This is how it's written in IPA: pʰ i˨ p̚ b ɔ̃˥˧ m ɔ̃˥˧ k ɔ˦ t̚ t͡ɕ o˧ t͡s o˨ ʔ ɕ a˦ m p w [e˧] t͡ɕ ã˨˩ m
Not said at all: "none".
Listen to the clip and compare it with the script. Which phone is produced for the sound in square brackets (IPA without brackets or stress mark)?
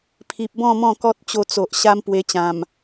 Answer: e˧